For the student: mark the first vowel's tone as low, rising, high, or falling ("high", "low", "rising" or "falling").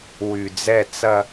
low